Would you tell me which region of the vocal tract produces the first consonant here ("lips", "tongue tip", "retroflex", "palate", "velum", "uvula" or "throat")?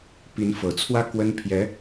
lips